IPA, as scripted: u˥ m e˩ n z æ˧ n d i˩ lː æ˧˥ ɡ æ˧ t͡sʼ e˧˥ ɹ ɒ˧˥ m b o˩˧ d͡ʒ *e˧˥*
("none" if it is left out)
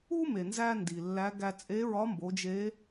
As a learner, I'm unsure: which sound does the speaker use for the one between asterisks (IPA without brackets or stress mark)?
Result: e˧˥